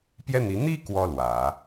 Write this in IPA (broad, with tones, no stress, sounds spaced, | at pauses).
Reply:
p j ɛ˥ n̪ i˧˥ n̪ i˥ k w ɔ˥ l w ä˨˩˦